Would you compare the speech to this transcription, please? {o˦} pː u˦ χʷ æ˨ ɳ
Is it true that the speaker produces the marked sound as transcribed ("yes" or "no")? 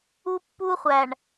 no